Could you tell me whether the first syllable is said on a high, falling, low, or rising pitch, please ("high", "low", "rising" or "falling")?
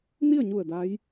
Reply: falling